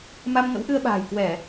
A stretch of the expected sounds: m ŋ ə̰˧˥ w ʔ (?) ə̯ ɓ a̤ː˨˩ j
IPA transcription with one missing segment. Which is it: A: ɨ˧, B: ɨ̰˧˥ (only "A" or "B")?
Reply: A